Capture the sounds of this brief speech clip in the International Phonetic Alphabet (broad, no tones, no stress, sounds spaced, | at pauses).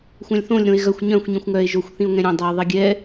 xʷ œ̃ lʲ θ õ lʲ ɾ õ e̯ ɣ œ xʷ ɲ œ̃ xʷ ɲ ĩ xʷ ŋ œ e̯ ʒ o xʷ θ ĩ o̯ ŋ ɛ̃ ɾʲ õ dˤ ɛ o̯ ðˤ i ɡʲ ɛ